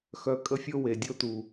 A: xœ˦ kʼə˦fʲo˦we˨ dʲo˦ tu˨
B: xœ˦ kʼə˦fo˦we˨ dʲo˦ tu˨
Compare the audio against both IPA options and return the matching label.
A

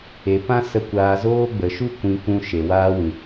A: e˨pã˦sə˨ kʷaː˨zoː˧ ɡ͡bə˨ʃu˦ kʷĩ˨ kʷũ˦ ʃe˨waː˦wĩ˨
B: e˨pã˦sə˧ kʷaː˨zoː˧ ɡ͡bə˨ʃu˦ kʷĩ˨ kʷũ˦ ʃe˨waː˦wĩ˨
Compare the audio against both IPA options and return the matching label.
B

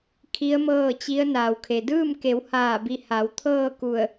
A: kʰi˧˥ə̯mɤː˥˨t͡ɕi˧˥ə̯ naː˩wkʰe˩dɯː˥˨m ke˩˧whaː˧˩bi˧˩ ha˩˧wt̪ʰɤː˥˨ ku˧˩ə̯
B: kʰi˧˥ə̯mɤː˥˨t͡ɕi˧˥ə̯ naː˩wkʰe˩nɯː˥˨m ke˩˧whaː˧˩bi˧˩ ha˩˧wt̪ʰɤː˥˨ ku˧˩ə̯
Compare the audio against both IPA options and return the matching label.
A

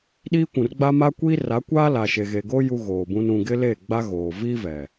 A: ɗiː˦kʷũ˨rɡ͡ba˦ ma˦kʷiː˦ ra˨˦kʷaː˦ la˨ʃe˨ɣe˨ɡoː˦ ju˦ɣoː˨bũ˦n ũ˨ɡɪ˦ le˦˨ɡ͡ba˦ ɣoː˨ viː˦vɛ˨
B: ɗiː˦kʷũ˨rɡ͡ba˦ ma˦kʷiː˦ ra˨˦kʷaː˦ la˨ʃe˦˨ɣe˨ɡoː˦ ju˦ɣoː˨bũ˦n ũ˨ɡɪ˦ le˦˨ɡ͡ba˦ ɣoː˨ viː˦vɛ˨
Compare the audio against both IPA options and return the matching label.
A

